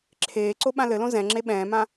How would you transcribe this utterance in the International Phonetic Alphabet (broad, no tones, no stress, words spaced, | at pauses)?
ǁʰeːǀo ɓãlɘlõ zɛ̃ ŋ͡ǁeɓɛ̃ːmã